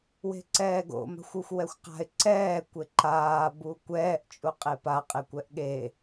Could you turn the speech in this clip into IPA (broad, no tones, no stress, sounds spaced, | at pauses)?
w e̤ ǀ ɛː ɡ o̰ m a̤ xʷ u xʷ w ɛ xʷ q a̤ ɪ̯ ǀ ɛː kʷ e ǃ aː b u kʷ ɛː ʔ t͡ʃʼ u qʼ e p a qʼ e kʷ ɛ ʔ ɠ e